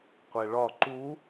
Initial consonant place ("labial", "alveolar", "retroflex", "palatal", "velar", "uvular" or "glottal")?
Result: uvular